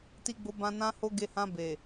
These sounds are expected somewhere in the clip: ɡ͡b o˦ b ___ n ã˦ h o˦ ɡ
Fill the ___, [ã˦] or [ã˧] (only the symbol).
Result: ã˦